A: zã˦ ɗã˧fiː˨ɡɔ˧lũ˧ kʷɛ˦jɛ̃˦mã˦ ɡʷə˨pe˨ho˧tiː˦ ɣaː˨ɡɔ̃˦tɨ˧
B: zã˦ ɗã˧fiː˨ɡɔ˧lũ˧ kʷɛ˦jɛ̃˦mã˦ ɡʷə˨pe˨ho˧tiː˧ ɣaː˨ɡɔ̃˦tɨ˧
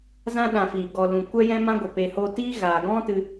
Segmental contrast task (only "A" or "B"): A